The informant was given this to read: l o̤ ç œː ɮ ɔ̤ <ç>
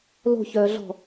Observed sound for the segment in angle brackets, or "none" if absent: none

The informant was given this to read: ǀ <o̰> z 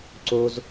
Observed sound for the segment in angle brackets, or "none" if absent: o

